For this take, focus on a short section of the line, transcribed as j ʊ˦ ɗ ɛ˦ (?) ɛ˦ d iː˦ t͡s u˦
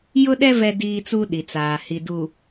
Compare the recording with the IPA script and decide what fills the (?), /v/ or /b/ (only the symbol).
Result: v